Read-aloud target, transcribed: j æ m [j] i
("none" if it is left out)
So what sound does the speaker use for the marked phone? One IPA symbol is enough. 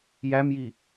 j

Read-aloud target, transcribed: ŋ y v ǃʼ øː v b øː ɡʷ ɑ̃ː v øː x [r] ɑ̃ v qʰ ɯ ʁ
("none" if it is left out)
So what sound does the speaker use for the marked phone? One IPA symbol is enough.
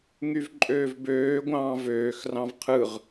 r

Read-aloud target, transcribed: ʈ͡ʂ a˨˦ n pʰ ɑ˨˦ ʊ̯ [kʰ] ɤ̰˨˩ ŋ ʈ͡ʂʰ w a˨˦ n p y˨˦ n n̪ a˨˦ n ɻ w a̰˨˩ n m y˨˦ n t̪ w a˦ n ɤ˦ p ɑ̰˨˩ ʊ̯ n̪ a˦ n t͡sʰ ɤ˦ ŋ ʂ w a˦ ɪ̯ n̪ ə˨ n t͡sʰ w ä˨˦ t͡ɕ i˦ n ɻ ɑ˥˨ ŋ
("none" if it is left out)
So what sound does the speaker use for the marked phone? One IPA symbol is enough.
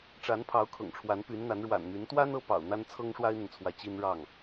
kʰ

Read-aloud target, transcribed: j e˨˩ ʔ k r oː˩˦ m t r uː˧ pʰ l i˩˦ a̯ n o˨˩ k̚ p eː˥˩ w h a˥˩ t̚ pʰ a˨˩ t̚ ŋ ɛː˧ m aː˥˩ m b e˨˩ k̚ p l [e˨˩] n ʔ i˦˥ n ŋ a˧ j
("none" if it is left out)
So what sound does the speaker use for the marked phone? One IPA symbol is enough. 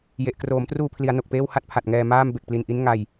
i˨˩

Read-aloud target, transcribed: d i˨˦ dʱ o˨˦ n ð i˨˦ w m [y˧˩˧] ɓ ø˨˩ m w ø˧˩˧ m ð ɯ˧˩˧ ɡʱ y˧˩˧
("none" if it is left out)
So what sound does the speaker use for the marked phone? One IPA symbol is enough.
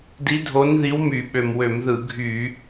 y˧˩˧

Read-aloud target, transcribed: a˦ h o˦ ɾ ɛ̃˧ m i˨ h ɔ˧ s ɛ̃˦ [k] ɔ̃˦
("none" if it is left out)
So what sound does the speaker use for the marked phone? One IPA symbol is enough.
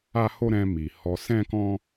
k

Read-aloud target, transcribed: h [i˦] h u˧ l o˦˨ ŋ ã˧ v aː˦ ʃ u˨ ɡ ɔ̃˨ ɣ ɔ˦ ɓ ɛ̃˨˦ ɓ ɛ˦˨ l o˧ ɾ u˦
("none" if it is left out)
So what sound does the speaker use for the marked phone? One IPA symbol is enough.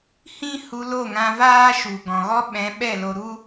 ĩ˦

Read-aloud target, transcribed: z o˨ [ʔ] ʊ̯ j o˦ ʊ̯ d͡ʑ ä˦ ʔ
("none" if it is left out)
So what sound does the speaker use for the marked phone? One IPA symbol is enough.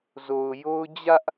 none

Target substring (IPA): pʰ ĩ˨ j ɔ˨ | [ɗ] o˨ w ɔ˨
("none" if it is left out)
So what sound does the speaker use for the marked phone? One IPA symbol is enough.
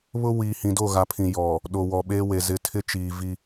ɗ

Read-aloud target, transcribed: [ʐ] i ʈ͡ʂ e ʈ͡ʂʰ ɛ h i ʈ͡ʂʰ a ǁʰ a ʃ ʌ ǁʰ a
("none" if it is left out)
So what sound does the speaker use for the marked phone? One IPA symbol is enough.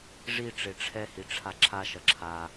ʐ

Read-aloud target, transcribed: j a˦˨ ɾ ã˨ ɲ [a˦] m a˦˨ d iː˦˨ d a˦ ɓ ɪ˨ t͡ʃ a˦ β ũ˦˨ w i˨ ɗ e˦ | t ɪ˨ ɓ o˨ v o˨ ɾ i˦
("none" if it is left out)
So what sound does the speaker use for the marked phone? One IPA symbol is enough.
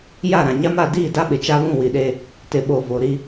a˦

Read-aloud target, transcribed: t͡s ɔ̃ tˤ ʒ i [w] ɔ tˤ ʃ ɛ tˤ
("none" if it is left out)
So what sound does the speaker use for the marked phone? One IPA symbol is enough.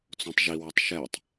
w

